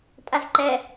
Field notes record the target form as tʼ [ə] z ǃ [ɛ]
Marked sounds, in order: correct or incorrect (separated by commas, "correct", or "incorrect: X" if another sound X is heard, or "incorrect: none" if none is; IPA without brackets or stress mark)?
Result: incorrect: a, correct